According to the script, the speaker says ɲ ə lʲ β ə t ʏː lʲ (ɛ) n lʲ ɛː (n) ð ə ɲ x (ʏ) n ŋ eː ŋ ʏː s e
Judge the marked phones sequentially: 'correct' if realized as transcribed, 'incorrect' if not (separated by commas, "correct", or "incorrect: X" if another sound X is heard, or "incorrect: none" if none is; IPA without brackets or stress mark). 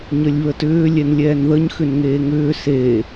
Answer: correct, correct, correct